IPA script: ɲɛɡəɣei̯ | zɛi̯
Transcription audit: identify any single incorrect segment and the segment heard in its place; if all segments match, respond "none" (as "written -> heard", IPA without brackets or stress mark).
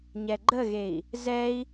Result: ɡ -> ɡ͡ǃ